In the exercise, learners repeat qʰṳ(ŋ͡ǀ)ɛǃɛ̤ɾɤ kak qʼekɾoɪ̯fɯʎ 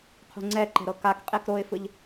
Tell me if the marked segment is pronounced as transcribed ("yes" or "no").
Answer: yes